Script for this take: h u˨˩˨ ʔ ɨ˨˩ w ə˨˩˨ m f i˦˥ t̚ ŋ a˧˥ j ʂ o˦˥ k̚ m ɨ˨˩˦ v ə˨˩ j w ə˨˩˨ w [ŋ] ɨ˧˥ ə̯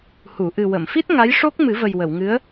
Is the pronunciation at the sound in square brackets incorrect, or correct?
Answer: correct